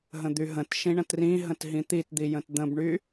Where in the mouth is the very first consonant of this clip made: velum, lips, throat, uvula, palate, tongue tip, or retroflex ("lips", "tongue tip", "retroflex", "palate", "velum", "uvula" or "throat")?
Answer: throat